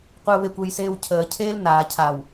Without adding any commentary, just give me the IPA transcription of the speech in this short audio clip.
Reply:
qʷ e ʊ̯ β e kʷ e j s eː w cʰ əː cʰ eː l n aː cʰ a w

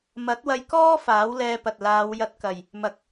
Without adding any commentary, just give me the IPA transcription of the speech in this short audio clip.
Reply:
m ɐ˨˥ t̚ w ɐ˧ j k ɔː˥ f aː˨˥ w l ɛː˧ p ɐ˨ t̚ l aː˨˧ w j ɐ˧ t̚ k ɐ˨ j | m ɐ˨ k̚

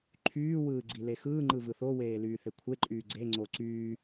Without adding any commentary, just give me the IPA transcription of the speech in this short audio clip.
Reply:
ǃʰ yː w ɯː ɡ͡ǀ i l e x ɯː ŋ͡ǃ ɯ v ɯ θ o w eː l yː θ e kʷʰ e ǃʼ yː ɡ͡ǀ e ŋ͡ǀ o ǀ yː

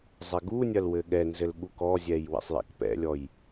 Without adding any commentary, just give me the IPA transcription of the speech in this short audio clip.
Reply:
zˤ ɛ ɡ u nʲ ɐ l w ɘ ɠ ɛ n z ɘ l ɠ u k ɔ zʲ ɛ j w ɛ̰ sˤ j a̰ k p ɛ̰ lʲ ɔ j

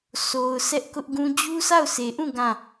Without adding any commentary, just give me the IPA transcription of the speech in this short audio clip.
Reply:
s o˨ ʊ̯ s ɛ˦ ʔ k ʊ˦ ʔ ɡ ũ˦ d͡ʑ u˦ s a˦˨ ʊ̯ s e˨ ʔ ũ˦˨ ɡ ã˦˨

